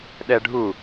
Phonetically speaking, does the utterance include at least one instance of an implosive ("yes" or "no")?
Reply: yes